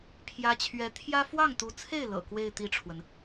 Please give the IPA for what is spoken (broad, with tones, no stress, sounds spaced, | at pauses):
pʰ j ä˥ t͡ɕʰ ɥ ɛ˧˥ t̪ʰ j ä˥ f w ɑ˥˩ ŋ t̪ u˧˥ t͡sʰ e˥˩ ɪ̯ l ɤ̰˨˩ k w e˥˧ ɪ̯ t̪ i˥˩ ʈ͡ʂʰ w ə˩ n